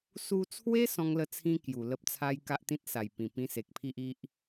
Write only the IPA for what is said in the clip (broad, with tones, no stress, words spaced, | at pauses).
su˧t͡sʰwe˦ sɔ̃˦ŋlə˥˧t͡sʰĩ˦ kju˨˩lə˦p̚t͡sʰa˦j ka˦ʔt̪ĩ˦t̚sa˨˩jpĩ˨˩ pĩ˧se˨k̚pʰi˦ʔ i˦ʔ